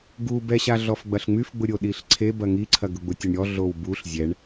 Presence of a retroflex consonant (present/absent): present